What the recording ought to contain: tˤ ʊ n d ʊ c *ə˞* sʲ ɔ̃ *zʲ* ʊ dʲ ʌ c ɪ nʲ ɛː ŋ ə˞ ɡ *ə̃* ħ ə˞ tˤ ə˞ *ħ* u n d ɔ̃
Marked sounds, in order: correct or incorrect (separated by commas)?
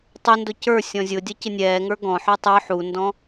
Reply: correct, correct, incorrect, correct